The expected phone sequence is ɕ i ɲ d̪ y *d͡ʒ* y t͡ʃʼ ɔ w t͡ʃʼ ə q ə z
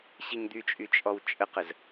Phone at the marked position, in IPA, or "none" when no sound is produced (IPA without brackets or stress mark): t͡ʃʼ